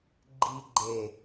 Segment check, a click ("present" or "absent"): present